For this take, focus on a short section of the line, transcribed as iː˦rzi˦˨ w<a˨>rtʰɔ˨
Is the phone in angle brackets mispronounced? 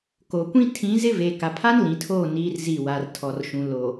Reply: no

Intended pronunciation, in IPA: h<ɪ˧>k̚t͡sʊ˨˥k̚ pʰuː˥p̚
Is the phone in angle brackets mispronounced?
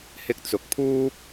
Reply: no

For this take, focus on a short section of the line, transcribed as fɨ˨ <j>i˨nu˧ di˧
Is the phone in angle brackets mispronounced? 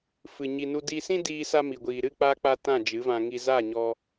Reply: yes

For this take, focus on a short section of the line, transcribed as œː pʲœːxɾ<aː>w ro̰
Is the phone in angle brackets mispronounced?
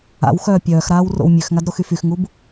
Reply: no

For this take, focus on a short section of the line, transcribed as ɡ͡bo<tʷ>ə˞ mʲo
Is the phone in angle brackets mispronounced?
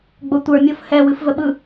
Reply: no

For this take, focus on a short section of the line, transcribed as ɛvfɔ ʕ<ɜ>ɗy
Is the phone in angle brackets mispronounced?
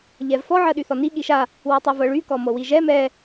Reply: no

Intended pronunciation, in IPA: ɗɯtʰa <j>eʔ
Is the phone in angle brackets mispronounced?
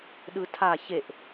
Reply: yes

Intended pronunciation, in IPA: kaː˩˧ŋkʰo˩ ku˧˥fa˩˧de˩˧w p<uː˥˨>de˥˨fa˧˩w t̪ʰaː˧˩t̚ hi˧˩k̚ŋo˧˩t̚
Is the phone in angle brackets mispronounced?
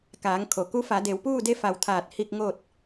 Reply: no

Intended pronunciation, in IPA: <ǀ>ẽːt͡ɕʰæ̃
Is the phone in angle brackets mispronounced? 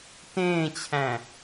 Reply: yes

